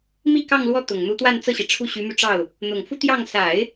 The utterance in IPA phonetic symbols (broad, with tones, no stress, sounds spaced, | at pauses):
m i˥˧ k ɑ˥˧ ŋ l w ɔ˥˩ t̪ ʊ˨˩ ŋ n̪ u˧˥ t̪ w a˥˧ n t͡s ɤ˥˩ ɕ i˩ ʈ͡ʂʰ u˥˩ ɕ y˧˥ m y˧ ʈ͡ʂ ɑ˥˩ ʊ̯ | n̪ ʊ˨˩ ŋ f u˥ t̪ j ɑ˥˩ ŋ s a˨˩˦ ɪ̯